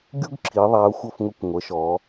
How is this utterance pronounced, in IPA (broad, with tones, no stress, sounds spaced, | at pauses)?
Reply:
ɡʲ u˥ ɡ ǁʰ i˨˦ ðˤ æ˨˦ ʊ̯ xʷ ʌ˦˨ f ŋ ʊ˦˨ kʷ ŋʷ ə˨˦ ʃ ɔ˨˦